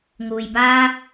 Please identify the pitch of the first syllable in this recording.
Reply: low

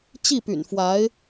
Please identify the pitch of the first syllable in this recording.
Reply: falling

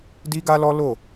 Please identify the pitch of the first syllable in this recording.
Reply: high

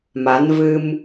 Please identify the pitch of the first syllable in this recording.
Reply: rising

